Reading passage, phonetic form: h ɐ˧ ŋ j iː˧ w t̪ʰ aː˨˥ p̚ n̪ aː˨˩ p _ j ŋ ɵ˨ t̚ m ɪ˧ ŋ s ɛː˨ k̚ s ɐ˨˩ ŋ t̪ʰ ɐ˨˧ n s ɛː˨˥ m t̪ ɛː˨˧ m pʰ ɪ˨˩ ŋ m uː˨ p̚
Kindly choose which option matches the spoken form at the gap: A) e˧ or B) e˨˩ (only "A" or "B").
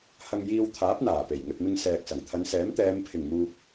B